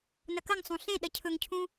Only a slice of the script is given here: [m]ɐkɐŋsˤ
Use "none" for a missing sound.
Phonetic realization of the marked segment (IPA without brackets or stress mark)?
n